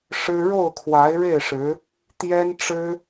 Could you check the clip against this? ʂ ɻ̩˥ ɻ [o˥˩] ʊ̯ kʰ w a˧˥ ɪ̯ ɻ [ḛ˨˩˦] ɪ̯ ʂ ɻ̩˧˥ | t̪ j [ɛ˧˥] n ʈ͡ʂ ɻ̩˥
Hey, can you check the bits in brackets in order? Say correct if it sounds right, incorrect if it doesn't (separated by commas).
correct, incorrect, incorrect